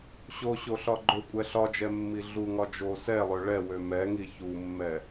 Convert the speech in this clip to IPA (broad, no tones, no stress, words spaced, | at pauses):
ɕoɕoɬɒ ɡ͡ǃøkʷʼɛ ɬɒd͡ʒɛmːi ɮuŋɒ d͡ʒo sɛlˠø ɭɛwø mɛŋi çumːɛ